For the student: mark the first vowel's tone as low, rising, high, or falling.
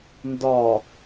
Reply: low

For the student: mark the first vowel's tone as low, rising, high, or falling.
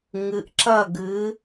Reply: rising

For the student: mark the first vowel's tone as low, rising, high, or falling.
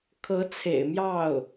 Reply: rising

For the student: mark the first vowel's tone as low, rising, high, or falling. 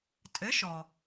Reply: rising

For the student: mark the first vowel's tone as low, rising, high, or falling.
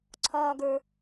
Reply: high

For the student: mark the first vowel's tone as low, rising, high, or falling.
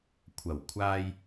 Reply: low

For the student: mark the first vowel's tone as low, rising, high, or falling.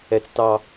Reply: high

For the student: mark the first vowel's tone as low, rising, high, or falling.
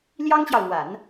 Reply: high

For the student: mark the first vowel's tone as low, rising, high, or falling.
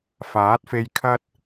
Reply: rising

